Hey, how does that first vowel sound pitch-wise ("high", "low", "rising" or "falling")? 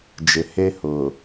low